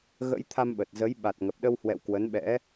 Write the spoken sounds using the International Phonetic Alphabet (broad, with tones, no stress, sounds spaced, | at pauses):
ɣ ə̰˧˥ j t̪ʰ a˧ m ɓ ə˨˩ t̚ z ə˨˦ j ɓ a˨˩ t̚ ŋ ə˨˩ p̚ ɗ ə˧ w h w ɛ̰˧˨ w k w ə˨˦ n ɓ ɛ̰˧˥